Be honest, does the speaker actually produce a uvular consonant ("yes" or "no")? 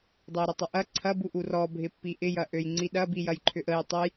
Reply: no